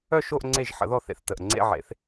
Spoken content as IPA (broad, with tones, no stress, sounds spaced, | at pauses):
œ˥˧ ʃ o˥˧ ʔ ŋ͡ǀ e˥˩ ʒ ħ ə̰˩˥ ð ɔ˥˩ θ ḛ˧˩ θ t ə˧˩ ʔ ŋ͡ǀ ḛ˥˧ ʕ ḛ˩˥ θ